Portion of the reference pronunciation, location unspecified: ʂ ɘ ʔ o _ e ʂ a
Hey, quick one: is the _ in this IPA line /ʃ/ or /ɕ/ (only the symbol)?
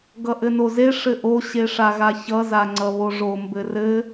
ɕ